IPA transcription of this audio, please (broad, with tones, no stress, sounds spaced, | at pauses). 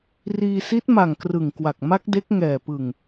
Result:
r iː˧ s i˦˥ t̚ m a˨˩ ŋ k r ɯ˨˩ ŋ k w a˨˩ k̚ m a˦˥ k̚ d e˦˥ k̚ ŋ ɛː˨˩ p ɯ˨˩ ŋ